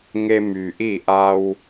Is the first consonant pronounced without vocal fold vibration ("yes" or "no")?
no